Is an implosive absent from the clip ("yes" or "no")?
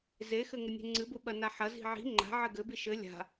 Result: no